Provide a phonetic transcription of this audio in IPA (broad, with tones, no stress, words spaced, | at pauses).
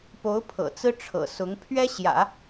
po˧˥ʊ̯ pʰɤ̰˨˩t͡sɹ̩˥ ʈ͡ʂʰɤ̰˨˩sʊ˧˥ŋ pʰɥɛ˥ɕjä̰˨˩˦